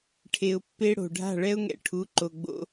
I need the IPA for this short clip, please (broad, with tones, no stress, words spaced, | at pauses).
ʈʰe˧ʊ̯pːe˦ɽo̤˨ ɖʱa̤˦˨ɭɛ˦ʊ̯ŋɛ̰˧ ʈʰu˨˦ǃo˨ɡ͡bo̰˧